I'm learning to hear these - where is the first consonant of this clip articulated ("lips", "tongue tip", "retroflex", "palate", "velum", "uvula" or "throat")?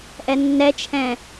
throat